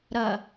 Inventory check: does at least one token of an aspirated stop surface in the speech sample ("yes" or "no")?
no